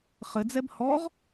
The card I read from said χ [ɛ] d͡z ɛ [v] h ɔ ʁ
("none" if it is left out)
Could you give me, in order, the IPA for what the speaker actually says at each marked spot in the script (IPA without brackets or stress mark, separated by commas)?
ɘ, b